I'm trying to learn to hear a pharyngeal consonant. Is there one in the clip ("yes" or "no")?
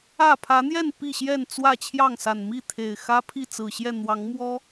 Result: no